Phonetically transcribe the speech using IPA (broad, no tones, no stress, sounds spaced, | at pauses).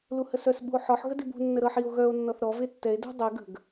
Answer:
l u h ə s œ s ɓ ṳ o̯ ħ ɔ ħ ɣ ə d i b ṳ nː ə ɾ ɤ ħ i o̯ ɣ œ o̯ nː ɔ θ ɾ ɔ v e tː ɛ e̯ d ṳ dˤ e ɡ ə̤ ɡ